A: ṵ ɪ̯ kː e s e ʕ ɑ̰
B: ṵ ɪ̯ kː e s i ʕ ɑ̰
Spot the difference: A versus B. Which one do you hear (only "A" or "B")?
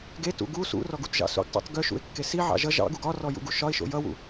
B